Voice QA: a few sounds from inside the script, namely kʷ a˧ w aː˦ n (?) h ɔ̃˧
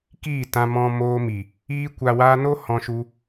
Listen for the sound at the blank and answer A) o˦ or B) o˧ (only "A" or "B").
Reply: A